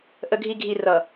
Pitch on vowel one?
low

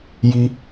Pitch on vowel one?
high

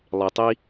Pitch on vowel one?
low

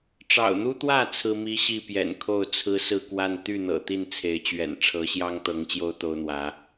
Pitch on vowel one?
low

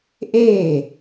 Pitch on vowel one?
falling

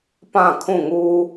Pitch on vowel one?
falling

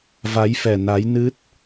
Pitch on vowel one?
rising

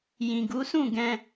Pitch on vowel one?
low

